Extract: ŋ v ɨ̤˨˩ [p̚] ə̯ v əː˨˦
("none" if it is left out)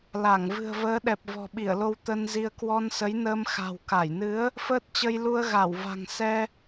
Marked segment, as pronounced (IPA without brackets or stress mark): none